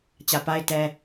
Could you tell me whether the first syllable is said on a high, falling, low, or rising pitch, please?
low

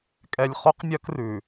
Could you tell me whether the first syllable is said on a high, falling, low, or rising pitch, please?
low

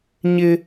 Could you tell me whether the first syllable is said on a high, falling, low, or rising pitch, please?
high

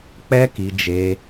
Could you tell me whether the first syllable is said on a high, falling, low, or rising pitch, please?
high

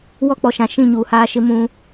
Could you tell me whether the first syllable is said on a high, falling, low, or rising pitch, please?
high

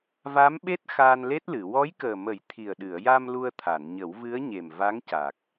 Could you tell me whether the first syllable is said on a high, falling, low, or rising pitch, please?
rising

